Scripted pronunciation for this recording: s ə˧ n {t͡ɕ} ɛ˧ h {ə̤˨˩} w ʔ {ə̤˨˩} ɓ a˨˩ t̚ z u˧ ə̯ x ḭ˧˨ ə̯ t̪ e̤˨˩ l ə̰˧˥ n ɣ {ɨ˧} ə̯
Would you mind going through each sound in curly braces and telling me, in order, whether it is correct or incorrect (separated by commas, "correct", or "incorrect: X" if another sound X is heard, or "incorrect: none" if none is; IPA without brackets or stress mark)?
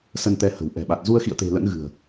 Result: incorrect: t̪, correct, incorrect: ɛ̤˨˩, incorrect: ɨ̤˨˩